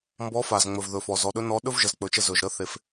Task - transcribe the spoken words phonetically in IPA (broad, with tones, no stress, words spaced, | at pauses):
mbɔ˧˥fa˩z ŋ͡mɵ˩vðɵ˩fɔ˩ zɔ˩˧ɗɵ˧˥ nɔ˧˥ ɗɵ˥vʒə˩˧zk͡pɵ˩˧t͡ʃə˧ zɵ˩ʒɾə˧˥ θe˧f